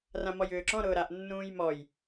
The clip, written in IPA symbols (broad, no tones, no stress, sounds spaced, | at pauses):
r ã m ɔ j ʏː ǁ ɔ̃ ɾ ʊː ɾ a ʔ nː ũː j m ɔ j